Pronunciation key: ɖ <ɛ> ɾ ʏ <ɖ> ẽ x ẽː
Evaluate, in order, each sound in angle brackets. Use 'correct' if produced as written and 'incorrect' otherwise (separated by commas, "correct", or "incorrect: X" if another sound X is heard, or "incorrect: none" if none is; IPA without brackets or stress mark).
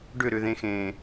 incorrect: ʏ, incorrect: ð